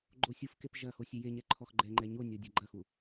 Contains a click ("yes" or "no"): yes